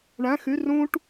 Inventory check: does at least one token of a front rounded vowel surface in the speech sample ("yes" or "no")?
yes